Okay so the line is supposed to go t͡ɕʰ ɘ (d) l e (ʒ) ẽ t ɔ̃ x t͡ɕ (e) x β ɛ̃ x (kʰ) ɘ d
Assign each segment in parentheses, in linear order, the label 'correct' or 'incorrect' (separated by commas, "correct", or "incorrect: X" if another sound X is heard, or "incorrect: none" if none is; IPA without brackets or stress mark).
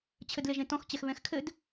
correct, correct, incorrect: ɛ, correct